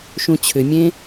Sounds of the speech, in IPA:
ʃũt͡ɕʰʏmʲẽ

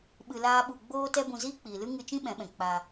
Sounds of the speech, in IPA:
ɓɨ˧laː˦ɓu˧ ɡ͡boː˦tɛ˦bũ˧ ziː˦k͡piː˨lɨ˦ ŋɨ˧t͡ʃĩ˦ ɓɛ̃˨˦ɓɛ̃˨ k͡pa˧

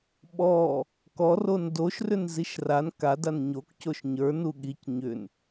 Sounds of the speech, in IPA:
ɓɔ | kɔron doʃrʏn ziʃran kadan ɲokcoʃ ɲə˞ nuɠic ɲʏn

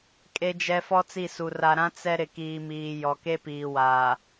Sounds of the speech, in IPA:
kʼe˨d͡ʒɛ˨ fɔ˦t͡si˦˨su˨ ra˨ɾã˦ t͡sɛ˦ ɾɪ˨kiː˨miː˨ jɔ˨ke˦piː˨waː˨

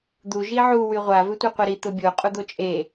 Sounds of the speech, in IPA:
d̪u ʒiʕu wyʁʷa vʏtʷœqʷɐɾi t̪ʊbʲo qʼud̪ot͡ʃʼe

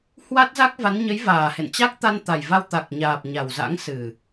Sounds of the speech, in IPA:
hwa˦˥t̚za˦˥k̚va˨˦n ɲə˨˦jvaː˨˩hḛ˧˨n t͡ɕa˦˥k̚t̪a˧nt̪a˨˩jva˧w t̪a˨˩k̚ɲaː˨˩p̚ ɲa˨˩wza̰˧˥ŋsɨ˨˩

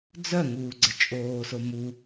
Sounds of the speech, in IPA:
d͡zœŋuːɡ͡ǀə t͡ʃʼoːso mu

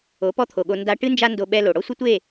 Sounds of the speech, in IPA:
o˨˦pɔ˦t̪ʰo˨ɠo˧ nda˧ʈɨ˦nd͡ʒa˦ ndo˧ɓɛ˧lo˨ ɽɔ˦sʷɘ˦tʷe˦˨

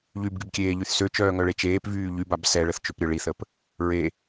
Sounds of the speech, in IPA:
ʎybɡybkʲeːʎyθ søt͡ʃœːŋœɭe t͡ʃeːpvyː ʎybab sɛɭəθt͡ʃøpɾʲœ ɭiθəp | ɹe

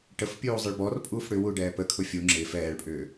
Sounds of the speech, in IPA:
ʈəfpʲuː zˤɪɭbɔrpʼuːf ɽʏwu ɖɛːpəkʰʊ fʲu ŋ͡ǁɪːf ɛːɭpʼʏː

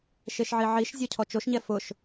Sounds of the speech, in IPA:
ʃeʃʕiʕiʃzʲɔ cʰɔt͡ʃoʃɲɛ fʊʃ

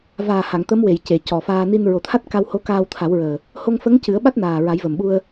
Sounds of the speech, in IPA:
vaː˨˩ha˨˩˨ŋ t̪ə˧˥mwe˨˩˨j ce˨˩˨ cɔ˨˩faː˧ ni˧nɹo˨˩˦t̪ʰa˦˥t̚ ka˧who˧˥ kaː˧wt̪ʰa˨˩˦wɹəː˨˩ | ho˧ŋfə˧˥ŋ cɨ˨˩˦ə̯ɓa˦˥t̚naː˨˩ ɹa˨˩˦jvə˨˩mɓu˧ə̯

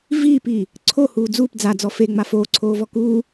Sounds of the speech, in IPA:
viːpiː | ǀʰo huːd͡zuːp d͡zad͡zɔ feŋ͡ma foːǀʰoːvɔ kuː

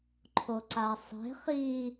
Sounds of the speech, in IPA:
ǃʰoǀasˤe̤ χi

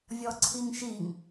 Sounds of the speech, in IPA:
vʲɔǀʰiŋʃiŋ

